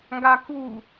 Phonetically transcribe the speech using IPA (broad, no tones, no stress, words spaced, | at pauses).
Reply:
ŋɡaku